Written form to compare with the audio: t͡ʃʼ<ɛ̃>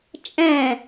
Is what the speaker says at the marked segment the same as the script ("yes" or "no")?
yes